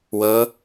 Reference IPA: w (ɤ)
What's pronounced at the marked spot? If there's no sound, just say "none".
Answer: ɤ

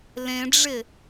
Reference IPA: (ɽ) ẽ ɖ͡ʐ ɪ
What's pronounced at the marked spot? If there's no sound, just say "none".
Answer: l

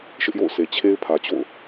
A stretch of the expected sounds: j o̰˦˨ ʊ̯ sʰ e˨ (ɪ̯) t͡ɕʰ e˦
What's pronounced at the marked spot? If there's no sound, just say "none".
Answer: none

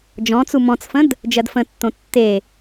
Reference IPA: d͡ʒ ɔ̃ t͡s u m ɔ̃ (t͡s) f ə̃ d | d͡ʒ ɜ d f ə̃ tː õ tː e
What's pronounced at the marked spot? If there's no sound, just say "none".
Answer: t͡s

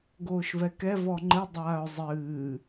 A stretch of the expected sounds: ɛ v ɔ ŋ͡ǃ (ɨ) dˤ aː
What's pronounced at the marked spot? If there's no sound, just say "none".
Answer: ɨ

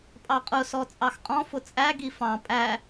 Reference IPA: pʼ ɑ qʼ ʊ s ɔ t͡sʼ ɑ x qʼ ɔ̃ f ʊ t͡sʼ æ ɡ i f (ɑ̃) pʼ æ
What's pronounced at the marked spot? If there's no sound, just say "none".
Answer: ɑ̃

